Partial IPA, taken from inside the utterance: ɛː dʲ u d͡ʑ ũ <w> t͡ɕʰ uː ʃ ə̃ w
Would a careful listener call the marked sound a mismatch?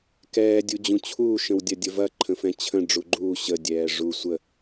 yes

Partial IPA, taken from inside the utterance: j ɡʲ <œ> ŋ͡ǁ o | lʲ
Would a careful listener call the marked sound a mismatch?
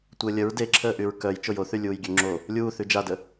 yes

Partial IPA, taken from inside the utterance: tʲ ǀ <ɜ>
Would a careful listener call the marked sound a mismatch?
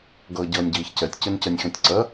no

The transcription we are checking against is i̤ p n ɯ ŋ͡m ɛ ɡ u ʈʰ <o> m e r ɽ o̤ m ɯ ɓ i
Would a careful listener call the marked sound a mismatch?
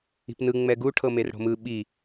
yes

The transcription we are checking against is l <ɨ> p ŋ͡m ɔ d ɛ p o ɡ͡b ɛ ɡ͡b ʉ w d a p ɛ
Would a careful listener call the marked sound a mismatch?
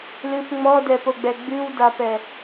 no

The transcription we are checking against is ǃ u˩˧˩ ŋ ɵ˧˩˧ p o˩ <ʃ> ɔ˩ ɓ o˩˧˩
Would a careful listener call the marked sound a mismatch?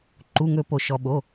no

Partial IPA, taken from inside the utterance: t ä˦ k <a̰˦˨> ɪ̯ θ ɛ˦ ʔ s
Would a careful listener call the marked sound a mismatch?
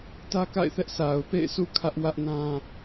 no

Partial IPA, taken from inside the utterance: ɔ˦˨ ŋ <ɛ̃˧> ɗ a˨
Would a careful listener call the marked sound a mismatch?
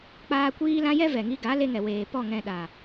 no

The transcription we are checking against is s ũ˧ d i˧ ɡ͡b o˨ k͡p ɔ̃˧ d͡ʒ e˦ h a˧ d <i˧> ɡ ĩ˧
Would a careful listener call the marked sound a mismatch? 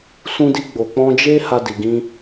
yes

